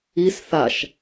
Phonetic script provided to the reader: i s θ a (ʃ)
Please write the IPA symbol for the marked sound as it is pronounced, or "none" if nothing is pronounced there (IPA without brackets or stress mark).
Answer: ʃ